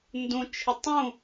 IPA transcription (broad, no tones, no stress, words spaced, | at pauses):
ndũt͡ʃʰɪ tˤũ